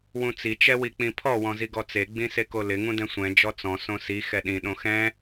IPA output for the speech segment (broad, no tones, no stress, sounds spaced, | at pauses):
w ũ t͡s i t͡ʃ ɛ w i k͡p ĩ pʰ ɔ w ɔ̃ z i ɡ ɔ t͡s e ɡ͡b ĩ s e k o l ɪ ŋ ũ d ɛ̃ sʷ ɛ̃ d͡ʒ ɔ t͡s ɔ̃ s õ s i x ɛ ɗ ĩ ɗ õ x ɛ̃